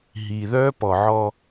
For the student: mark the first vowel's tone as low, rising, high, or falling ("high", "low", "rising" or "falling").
low